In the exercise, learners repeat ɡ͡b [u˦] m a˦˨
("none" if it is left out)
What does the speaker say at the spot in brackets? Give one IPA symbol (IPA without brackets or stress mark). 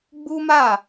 u˦